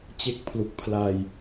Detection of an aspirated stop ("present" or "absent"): present